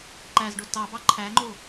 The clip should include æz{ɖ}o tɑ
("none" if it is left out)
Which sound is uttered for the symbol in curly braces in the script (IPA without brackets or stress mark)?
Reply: ɖ